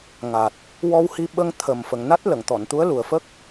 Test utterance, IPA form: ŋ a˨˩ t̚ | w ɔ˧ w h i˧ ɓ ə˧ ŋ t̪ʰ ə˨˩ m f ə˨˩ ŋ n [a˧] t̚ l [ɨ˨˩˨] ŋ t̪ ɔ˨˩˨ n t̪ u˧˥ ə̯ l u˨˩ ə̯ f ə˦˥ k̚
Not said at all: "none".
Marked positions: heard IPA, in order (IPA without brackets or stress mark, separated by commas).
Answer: a˦˥, ə˨˩˨